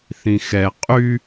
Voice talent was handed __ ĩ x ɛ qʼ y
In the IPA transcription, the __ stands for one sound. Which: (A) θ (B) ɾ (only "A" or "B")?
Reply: A